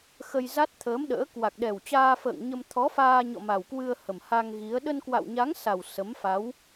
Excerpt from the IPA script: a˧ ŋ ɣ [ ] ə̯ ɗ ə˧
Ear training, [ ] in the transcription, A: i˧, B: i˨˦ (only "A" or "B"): B